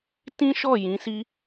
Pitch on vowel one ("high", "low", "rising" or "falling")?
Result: high